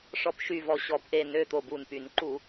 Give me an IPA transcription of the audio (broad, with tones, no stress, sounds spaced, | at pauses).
ʂ ɔ˧˩ p ʃ y˧˩ v ɔ˧˩ ɕ ɔ˧˩˧ p ʔ e˧˩ n ø˧˩ t̪ o˧˩ b u˧˩ n p y˧˩˧ n ǃ u˧˩˧